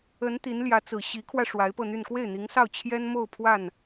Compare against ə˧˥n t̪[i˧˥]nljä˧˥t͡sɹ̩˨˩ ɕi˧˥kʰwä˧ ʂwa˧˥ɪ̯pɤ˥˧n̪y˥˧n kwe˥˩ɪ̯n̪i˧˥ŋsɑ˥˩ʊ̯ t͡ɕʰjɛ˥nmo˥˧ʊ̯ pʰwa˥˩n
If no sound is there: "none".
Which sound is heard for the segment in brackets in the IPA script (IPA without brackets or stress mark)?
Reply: i˧˥